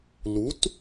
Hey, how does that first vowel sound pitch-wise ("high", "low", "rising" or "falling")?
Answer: rising